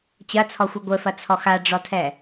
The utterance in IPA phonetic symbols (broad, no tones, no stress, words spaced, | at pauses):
t͡ɕɐt͡sʰɔxʷɘ ɡʷɘfɐt͡sʰɔ xaɖ͡ʐɔtʰɛ